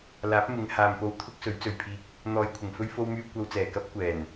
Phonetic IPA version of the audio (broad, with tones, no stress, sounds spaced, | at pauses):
l aː˨˥ p̚ m ɪ˨˧ ŋ h aː˨ m p o˧ w t̪ʰ ʊ˥ k̚ s ɵ˨˥ ɥ t͡s ɵ˨ ɥ pʰ iː˧ k̚ | n̪ ɔː˨ j kʷʰ ɪ˨˩ ŋ f ɵ˥ ɥ f o˧ w m yː˧ kʷ ɐ˧ w t͡s ɛː˨˩ k ɐ˥ p̚ kʷ ɛː˨˩ n